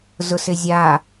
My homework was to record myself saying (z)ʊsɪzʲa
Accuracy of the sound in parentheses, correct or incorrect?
correct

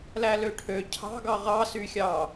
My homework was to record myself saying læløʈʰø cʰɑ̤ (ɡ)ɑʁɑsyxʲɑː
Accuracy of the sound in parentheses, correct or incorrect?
correct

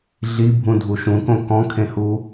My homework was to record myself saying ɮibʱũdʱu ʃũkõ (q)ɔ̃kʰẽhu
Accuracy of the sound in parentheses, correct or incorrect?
incorrect: k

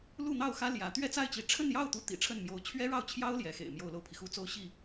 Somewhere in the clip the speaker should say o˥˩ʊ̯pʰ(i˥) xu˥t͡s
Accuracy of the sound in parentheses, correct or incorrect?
incorrect: i˩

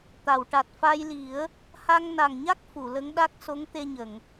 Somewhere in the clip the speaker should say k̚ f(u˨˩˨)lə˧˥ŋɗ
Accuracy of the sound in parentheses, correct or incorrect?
correct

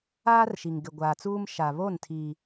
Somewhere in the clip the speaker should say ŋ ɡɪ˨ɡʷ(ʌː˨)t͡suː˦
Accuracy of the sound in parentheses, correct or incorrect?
incorrect: aː˨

